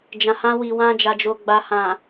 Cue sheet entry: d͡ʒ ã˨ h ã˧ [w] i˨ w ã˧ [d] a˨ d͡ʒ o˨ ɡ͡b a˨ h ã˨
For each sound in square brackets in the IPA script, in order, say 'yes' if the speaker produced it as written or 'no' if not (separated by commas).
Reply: yes, no